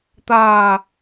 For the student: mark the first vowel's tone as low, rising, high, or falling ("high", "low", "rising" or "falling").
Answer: low